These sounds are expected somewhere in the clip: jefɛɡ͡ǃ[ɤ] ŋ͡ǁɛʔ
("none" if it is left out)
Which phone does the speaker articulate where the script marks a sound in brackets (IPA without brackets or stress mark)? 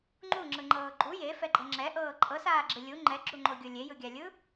ɤ